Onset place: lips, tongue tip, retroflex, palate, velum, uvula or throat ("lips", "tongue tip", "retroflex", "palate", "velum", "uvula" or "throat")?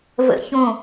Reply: lips